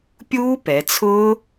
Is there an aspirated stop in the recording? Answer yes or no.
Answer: yes